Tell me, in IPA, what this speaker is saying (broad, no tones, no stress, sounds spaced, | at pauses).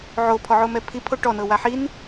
ʕ o pʰ ɔ ʕ o m ɛ pʰ i pʰ o ʈ ɔ n ɤ w a ħ i n